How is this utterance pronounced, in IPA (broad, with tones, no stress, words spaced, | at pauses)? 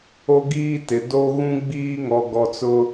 o˦ɡiː˦tɪ˨ do˦ ɣũ˦ɡ͡biː˦ŋɔ˨ ɡɔ˨ t͡sʊ˦